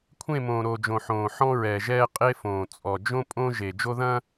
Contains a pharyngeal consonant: yes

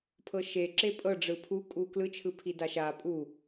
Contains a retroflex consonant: yes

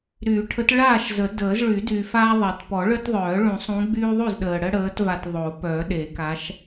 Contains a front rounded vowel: yes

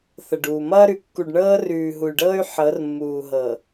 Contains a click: no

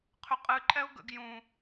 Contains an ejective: yes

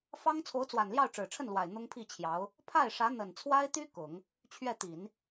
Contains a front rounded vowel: yes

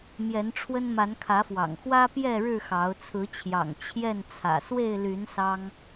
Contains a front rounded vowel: yes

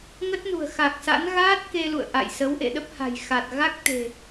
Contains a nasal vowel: no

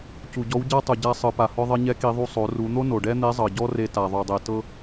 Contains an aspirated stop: no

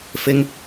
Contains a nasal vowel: no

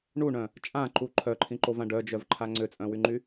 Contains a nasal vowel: yes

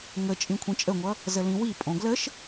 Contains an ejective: yes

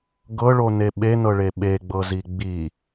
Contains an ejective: no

